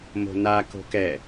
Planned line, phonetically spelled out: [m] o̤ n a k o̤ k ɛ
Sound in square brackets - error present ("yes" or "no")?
no